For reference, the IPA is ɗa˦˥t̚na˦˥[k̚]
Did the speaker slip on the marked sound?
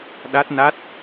yes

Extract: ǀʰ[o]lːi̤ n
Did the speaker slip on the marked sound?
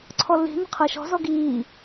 yes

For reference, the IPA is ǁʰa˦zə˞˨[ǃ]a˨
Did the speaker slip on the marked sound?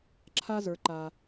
no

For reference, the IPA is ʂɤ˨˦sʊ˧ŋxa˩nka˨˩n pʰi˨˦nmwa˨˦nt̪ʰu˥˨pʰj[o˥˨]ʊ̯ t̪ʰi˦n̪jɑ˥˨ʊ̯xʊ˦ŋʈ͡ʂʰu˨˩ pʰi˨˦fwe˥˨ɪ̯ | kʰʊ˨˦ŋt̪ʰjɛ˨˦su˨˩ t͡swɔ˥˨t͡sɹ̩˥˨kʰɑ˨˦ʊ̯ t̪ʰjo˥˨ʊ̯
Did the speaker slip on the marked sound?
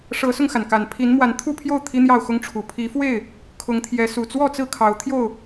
no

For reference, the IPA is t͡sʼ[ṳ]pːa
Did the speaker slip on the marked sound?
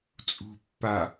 no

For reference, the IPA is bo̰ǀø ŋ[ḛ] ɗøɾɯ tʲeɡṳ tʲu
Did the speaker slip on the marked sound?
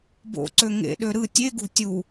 no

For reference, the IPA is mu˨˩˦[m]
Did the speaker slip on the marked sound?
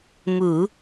yes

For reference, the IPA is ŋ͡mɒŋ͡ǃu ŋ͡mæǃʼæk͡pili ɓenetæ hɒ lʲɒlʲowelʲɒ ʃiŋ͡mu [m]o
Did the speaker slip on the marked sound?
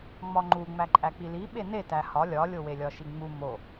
no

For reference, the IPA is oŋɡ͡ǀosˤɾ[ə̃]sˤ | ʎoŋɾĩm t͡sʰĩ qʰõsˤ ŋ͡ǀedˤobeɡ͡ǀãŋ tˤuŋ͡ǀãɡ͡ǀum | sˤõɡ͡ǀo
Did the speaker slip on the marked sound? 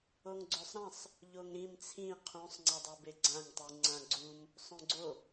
yes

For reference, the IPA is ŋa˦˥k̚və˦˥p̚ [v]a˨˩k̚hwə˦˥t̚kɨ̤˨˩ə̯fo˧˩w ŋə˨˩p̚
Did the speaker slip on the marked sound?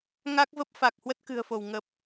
yes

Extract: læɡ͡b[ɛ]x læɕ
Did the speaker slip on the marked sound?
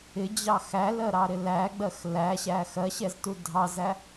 yes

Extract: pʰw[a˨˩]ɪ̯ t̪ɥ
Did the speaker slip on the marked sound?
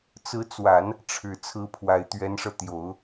no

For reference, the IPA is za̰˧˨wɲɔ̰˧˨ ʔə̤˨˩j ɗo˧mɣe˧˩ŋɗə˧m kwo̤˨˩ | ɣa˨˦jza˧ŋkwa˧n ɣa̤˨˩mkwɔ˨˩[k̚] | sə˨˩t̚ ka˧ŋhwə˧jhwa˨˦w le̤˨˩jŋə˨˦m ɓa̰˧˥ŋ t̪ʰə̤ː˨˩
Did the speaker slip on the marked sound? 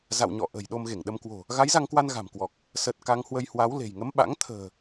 no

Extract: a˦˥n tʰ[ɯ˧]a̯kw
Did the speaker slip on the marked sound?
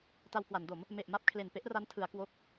yes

